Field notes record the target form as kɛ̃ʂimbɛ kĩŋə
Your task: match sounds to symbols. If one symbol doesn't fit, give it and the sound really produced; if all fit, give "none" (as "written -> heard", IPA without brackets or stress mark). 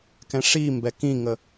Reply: none